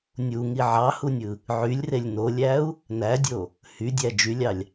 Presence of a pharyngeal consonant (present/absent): present